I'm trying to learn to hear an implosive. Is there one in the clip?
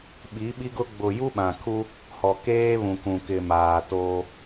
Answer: yes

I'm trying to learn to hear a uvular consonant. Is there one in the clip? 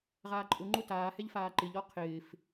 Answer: yes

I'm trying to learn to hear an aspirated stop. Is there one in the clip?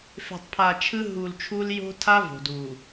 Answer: yes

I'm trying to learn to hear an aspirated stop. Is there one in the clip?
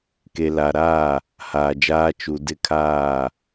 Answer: yes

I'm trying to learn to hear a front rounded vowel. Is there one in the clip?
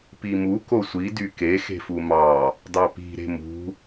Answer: yes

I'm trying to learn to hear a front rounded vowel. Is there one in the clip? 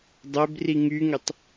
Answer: yes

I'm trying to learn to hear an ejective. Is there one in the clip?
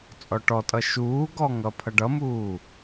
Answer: yes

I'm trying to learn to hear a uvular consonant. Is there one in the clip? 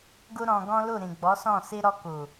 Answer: no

